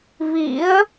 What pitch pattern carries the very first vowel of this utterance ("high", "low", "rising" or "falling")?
rising